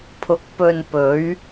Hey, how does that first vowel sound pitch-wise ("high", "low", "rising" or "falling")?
rising